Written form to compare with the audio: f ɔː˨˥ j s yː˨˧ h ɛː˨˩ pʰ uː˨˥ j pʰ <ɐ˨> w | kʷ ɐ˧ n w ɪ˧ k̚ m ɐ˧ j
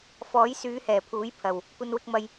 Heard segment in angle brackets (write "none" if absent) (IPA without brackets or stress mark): ɐ˨